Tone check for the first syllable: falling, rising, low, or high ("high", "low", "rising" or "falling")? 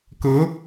rising